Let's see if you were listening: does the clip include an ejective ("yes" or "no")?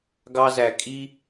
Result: yes